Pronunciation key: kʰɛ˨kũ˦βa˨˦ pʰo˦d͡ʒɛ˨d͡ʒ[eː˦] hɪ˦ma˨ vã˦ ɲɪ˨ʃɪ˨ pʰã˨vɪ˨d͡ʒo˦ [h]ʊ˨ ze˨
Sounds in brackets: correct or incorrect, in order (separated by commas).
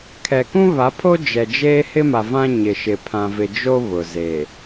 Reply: correct, incorrect